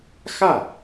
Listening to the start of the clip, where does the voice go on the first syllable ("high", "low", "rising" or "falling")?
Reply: falling